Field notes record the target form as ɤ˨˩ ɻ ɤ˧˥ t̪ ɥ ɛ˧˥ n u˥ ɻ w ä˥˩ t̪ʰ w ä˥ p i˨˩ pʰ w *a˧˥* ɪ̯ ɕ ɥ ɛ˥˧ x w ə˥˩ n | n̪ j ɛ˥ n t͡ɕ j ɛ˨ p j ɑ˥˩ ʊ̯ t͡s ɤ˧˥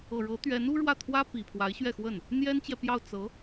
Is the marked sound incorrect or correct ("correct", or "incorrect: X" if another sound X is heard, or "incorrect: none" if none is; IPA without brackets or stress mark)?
correct